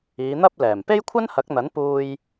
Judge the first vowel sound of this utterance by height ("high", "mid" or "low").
high